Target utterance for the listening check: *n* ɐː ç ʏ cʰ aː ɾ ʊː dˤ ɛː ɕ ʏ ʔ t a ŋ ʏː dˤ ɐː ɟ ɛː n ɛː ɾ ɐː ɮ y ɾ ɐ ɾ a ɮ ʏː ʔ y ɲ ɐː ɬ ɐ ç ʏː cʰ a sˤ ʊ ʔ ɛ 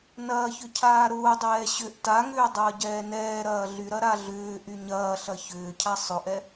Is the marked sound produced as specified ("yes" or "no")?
yes